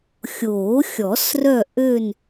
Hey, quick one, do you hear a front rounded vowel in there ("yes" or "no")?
yes